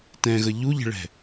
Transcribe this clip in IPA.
tɛ̃ɣə ʎuʎə̤ɭɛ̤

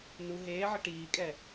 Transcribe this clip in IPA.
nu ɦeːʕə ʈiːkʼɛ

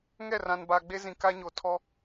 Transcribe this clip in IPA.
ŋɛ˦˨rã˨nba˨ ɡ͡be˦zĩ˨ka˦ ɲo˨tʰɔ˦

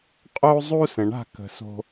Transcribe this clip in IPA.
qʼo˦zˤu˦sə̃˨ ɳa̤˦˨kə̤˨so̤˧

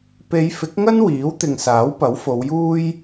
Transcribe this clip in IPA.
pe˨˧jfɪ˨˥k̚ŋɐ˥n wiː˨˥wt̪ɪ˨ŋsaː˨˥w pɐ˨˥wfo˨˧wjuː˥j

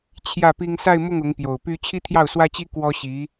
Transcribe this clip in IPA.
t͡ɕʰjä˥˩pi˥ŋ sa˥˧ɪ̯mʊ˥˩ŋ ʊ˧˥ŋpjo˨˩ʊ̯py˥ t͡ɕʰi˥t̪ʰjɑ˥˩ʊ̯swä˥t͡ɕi˥ kwɔ˥ɕi˧˥

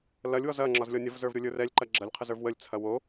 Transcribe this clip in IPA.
lɐlʲwɔz ɐŋ͡ǁɒzlʲɔ nʲɐvzə˞vɾʲolʲə˞ rɛlʲǃɐ ɡ͡ǁɐlʲqʰəzə˞v wəlʲt͡sʰɐ wo

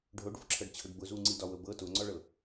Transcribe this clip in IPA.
ɖʱoɖvʊǁʰɤɖt͡ɕʰʊɖ bʊ zuŋ͡ǀidɒwɤb ɤ tʊŋ͡ǀɔɭɤ

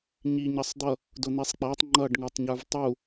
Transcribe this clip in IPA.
ɲiɲʌsˤd̪ʌ | dʊn̪isˤk͡pætˤ ŋ͡ǃʌɖ ŋə˞tˤɲə˞vtˤu

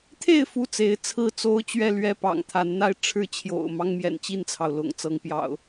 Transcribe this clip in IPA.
t̪ʰe˥˨ɪ̯ fu˥˨t͡se˨˦ɪ̯ t͡sʰɹ̩˥˨t͡so˦ʊ̯t͡ɕɥɛ˥˨lɥɛ˥˨ pɑ̰˨˩ŋ t̪ʰa˨˦nn̪a˦ɪ̯ʈ͡ʂʰɻ̩˥˨ t͡ɕʰjo̰˨˩ʊ̯ mɑ˦ŋmjɛ̰˨˩nt͡ɕi˥˨nt͡sʰɑ˩ʊ̯ lʊ̰˨˩ŋt͡sɤ˨˦ŋ pjɑ̰˨˩ʊ̯

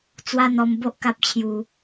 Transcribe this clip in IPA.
t͡swa˦n̪ɔ˧mbo˦ʔ ka˦p̚t͡ɕʰju˧

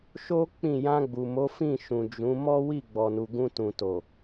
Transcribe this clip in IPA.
ʃo˦ k͡pĩ˦˨ jã˧ɡ͡bu˨mo˨˦ fĩ˦˨ʃũ˨ d͡ʒũ˨˦ mɔ˦wi˦˨ ɡ͡bɔ˨nu˨ɡũ˧tũ˨ to˨

